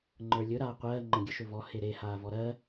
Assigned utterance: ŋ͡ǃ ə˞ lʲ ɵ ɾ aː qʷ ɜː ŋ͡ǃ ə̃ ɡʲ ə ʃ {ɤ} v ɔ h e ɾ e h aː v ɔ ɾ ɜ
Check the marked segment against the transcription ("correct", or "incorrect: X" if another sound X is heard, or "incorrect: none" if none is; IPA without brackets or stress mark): incorrect: ɵ